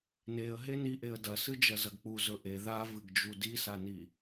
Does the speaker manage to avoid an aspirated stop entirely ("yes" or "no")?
yes